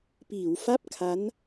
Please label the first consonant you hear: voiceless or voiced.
voiceless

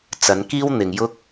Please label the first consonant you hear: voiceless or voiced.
voiceless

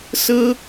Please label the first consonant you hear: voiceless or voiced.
voiceless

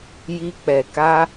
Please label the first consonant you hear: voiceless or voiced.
voiced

